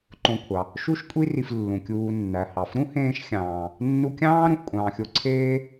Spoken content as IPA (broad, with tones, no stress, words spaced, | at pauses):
ǃõ˨kʷʰɑ˩ | ʃu˦ʃkʷʼi˦ ri˨flːũ˩kʲuː˨ nːæ˩hɑ˩f ɾũ˥hẽː˦ʃ xʲɑ̃ː˨ | nːu˦kʲɑ̃ː˥ ɾũ˨ʔkʷʼɑ̃ː˨xʲo˦ǀʰeː˥